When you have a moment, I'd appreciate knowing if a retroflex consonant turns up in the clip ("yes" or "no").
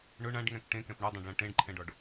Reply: yes